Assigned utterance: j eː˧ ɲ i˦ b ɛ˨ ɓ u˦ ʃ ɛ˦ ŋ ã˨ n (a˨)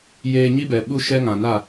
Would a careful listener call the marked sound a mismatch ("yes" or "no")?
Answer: yes